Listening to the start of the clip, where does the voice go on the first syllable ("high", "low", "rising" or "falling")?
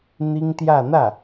high